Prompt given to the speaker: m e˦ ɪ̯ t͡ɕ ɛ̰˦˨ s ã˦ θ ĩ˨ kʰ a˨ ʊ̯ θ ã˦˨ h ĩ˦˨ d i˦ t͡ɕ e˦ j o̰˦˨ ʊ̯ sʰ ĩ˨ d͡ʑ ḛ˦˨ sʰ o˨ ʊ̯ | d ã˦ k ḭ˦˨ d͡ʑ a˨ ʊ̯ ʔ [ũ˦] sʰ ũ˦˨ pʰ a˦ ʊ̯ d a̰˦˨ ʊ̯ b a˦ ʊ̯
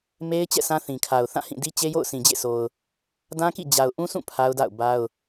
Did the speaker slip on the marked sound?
no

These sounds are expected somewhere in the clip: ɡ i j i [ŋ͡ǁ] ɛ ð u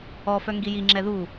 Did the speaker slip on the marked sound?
no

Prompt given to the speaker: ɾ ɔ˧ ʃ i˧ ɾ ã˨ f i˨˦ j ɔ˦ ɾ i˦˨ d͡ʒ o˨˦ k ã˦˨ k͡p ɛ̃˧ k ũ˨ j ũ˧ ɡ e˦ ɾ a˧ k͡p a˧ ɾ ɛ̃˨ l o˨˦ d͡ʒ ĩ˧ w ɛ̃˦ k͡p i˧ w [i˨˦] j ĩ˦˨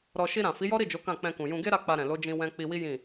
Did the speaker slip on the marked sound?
yes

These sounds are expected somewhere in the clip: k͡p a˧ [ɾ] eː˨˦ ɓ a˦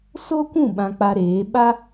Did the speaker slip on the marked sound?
no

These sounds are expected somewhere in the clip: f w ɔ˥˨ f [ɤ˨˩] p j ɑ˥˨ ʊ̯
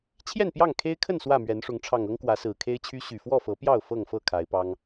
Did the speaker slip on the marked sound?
yes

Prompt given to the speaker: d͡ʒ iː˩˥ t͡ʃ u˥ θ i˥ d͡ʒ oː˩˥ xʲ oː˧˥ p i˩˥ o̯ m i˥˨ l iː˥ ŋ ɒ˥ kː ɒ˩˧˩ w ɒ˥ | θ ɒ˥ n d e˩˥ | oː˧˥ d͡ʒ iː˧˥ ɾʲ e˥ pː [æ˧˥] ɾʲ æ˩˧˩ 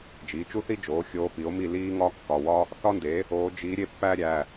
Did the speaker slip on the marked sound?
yes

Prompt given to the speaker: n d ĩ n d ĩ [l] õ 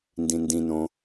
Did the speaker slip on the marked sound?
yes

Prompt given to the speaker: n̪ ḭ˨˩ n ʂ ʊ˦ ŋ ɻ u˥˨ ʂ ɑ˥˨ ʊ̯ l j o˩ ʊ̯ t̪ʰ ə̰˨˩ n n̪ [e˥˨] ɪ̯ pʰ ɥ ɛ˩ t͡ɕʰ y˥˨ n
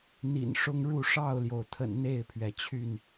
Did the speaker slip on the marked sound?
no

